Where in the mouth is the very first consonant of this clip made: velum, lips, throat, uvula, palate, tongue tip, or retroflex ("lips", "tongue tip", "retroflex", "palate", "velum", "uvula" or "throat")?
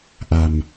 throat